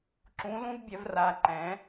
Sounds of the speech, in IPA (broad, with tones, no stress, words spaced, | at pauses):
ǁũ˩˥lũ˧˥˧v bʲɛ˩˥vra˩˧˩ǃɛ̃˩˥